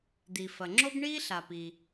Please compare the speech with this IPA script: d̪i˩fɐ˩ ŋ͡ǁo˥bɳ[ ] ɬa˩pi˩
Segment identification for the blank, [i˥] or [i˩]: i˥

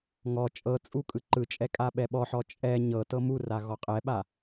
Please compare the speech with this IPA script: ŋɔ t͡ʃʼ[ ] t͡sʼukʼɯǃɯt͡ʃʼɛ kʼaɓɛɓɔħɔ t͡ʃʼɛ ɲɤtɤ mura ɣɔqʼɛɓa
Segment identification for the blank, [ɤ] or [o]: ɤ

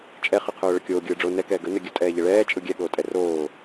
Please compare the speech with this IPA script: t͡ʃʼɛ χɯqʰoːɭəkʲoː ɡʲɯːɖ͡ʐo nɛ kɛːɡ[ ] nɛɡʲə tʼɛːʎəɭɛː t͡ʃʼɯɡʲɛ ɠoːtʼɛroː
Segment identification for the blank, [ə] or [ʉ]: ə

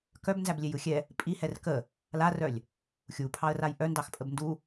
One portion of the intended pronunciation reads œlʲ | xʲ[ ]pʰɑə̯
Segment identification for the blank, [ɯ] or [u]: u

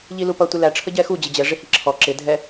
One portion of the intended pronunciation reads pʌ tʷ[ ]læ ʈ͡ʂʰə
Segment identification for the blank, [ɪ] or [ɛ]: ɪ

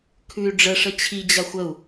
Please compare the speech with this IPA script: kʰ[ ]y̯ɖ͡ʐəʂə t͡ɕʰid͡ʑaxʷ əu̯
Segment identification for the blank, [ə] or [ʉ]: ʉ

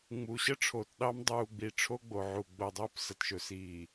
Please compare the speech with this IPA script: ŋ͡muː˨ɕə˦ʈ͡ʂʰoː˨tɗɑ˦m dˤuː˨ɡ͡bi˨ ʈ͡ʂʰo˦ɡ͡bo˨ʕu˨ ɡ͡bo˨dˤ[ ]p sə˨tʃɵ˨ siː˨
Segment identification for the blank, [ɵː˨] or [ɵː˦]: ɵː˦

